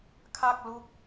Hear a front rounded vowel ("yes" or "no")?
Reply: no